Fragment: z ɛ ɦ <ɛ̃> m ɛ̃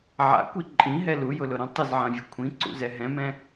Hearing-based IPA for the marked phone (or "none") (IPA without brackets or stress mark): ɛ̃